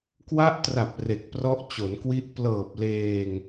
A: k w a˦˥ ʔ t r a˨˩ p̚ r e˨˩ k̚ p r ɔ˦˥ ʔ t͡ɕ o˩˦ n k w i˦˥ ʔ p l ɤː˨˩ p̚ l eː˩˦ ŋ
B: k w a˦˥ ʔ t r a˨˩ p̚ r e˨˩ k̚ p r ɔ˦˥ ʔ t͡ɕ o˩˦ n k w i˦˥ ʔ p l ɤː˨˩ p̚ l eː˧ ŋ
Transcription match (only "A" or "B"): B